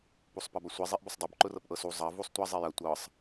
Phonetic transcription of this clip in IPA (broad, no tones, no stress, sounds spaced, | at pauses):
p u sˤ p ɐ b ɐ sʷ i zˤ i ʔ b ʊ sˤ dˤ ʊ b ǃ ʊ r ɤ p ʔ ɤ s u zˤ ɐ v u sˤ tʷ ɐ zˤ i j ɐ tʷ ɤ sˤ